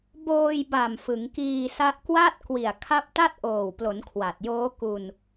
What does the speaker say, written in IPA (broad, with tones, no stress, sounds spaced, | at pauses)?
b oː˧ j b a˨˩ m f ɯ˩˦ ŋ k iː˧ s a˦˥ ʔ k w a˥˩ t̚ k w i˨˩ a̯ kʰ a˦˥ p̚ t a˥˩ t̚ ʔ oː˨˩ w p l o˩˦ n kʰ w a˨˩ t̚ j oː˦˥ k u˧ n